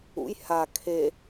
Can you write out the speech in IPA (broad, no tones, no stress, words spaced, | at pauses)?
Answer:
ṵj ha kʰe